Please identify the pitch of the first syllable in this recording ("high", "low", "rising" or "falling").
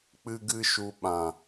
high